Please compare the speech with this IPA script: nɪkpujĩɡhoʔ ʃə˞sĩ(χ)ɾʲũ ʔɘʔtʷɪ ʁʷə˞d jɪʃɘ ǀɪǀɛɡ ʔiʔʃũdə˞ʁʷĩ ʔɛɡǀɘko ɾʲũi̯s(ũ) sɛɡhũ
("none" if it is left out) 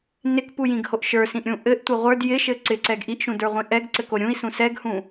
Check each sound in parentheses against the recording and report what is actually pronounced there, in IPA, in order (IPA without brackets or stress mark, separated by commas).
ʔ, ũ